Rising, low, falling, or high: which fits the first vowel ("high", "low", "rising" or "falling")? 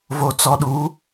low